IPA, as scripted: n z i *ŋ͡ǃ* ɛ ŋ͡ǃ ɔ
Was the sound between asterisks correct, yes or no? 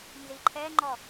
no